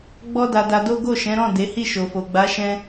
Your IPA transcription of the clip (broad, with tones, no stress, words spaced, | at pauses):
ɡ͡bɔ˦da˧ da˧do˦ ɡo˦˨ʃɛ̃˨˦ɾɔ̃˦˨ de˨˦hi˦˨ʃo˨fo˨ ɡ͡ba˨˦ ʃɛ̃˦